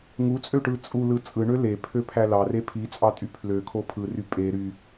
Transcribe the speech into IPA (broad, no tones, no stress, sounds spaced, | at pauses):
ŋ u t͡sʼ ø ʈ ɯ t͡sʼ u l ɯ t͡sʼ ɯ ɳ ø l e pʰ ø pʰ æ l ɑ r e pʰ i t͡sʼ ɑ tʼ y pʰ l ø kʰ o pʰ ɯ r y pʼ e ɾ y